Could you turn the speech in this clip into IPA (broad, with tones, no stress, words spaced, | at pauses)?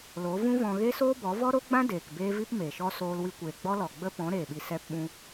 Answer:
lo˨˦vũ˦vɔ̃˧ ɣe˦soː˦bɔ˨˦vɔ˦ ɾo˦ɡ͡bã˦ deː˨kbeː˦vi˦p me˨ʃɔ˦ soː˧lwi˧kʷeː˨ ɡ͡bɔ˦lɔ˨ɡ͡bə˦ pɔ̃˨˦ɾeː˨ɓi˨ sɛ˧pɓũ˧